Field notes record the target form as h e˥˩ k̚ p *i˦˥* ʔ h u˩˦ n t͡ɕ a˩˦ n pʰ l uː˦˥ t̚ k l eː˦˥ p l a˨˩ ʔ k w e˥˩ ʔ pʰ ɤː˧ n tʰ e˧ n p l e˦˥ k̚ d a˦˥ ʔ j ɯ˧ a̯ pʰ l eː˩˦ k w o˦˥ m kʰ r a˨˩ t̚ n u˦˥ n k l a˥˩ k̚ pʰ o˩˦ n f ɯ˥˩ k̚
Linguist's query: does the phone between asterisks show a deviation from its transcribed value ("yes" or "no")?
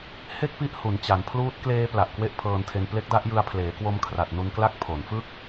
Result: no